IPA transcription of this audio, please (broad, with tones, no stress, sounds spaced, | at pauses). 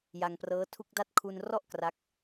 j a˧ ŋ p r ɤː˦˥ tʰ u˥˩ k̚ d a˥˩ t̚ kʰ u˧ n r ɔ˥˩ ʔ k r a˦˥ k̚